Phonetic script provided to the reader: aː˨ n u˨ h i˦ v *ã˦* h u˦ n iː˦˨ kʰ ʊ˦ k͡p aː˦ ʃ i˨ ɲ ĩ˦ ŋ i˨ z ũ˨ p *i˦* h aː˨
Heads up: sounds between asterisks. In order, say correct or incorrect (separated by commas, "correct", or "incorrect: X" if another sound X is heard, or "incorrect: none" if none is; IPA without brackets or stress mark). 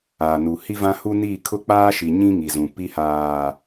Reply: correct, correct